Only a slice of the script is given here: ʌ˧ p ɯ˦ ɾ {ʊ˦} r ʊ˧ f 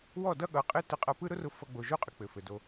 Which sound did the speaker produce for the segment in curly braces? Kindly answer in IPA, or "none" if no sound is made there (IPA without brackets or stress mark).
ʊ˦